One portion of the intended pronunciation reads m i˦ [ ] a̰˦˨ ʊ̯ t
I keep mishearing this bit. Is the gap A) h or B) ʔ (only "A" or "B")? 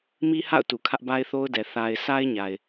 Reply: A